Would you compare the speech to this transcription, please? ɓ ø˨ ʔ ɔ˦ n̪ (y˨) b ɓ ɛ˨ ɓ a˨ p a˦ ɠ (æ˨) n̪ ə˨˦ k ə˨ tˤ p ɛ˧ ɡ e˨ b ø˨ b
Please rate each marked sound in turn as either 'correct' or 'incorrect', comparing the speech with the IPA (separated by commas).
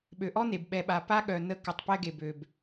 incorrect, incorrect